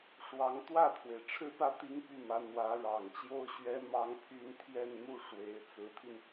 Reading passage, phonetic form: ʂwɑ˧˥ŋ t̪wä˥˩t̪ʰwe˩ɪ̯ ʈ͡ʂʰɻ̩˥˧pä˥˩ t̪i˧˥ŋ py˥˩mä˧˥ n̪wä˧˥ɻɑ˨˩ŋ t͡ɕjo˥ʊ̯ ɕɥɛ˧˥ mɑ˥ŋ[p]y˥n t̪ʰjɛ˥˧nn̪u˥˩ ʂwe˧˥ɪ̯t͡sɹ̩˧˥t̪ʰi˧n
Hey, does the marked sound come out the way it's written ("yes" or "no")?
no